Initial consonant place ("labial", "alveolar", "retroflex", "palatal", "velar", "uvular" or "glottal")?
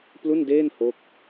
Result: labial